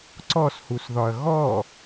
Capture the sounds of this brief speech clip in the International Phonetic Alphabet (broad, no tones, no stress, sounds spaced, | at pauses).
ǀ ɔ s h u s ð ɒ ɐ̯ ɣ ɔ